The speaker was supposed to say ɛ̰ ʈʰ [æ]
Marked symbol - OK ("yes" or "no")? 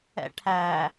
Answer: yes